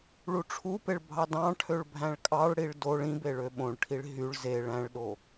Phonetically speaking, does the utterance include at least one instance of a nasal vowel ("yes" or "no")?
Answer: yes